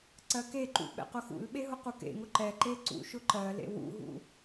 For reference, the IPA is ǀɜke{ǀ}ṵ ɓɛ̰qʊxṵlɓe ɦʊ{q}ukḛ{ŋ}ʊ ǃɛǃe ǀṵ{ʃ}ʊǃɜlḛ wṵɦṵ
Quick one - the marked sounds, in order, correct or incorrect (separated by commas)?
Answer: incorrect, correct, correct, correct